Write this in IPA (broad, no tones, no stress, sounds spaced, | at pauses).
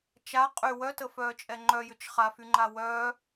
t͡ʃ a qʼ y w œ t ə f œː t͡ʃʼ ɛ ŋ͡ǃ œ j ʏ t͡ʃ χ a f y ŋ͡ǃ a w œː